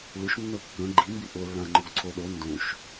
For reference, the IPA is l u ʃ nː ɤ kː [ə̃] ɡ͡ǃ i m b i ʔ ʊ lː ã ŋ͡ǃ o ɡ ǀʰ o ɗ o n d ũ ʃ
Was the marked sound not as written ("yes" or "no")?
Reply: no